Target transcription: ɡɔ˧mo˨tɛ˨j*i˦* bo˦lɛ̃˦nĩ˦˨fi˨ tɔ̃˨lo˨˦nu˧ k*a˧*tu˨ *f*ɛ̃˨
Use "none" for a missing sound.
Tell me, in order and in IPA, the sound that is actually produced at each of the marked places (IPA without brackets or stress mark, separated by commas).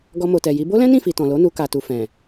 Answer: i˨˦, a˨, f